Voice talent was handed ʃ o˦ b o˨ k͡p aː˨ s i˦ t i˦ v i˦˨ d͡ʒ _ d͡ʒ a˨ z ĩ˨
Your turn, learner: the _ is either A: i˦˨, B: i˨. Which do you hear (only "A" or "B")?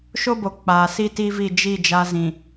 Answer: A